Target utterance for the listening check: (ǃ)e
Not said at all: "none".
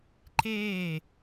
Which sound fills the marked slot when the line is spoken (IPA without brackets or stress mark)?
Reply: ǃ